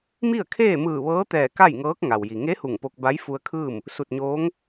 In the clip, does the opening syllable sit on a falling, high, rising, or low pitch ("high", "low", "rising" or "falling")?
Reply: falling